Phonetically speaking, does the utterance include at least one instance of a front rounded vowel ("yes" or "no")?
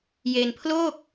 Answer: no